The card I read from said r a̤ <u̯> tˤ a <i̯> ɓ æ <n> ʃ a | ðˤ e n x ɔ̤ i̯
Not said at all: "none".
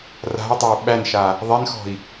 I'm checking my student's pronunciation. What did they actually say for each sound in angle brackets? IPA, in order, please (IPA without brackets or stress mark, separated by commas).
y̯, u̯, n